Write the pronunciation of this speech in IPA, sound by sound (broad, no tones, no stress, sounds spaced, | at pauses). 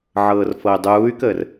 ʕ ɤː r f ɤ y̯ dˤ uː y̯ k əː r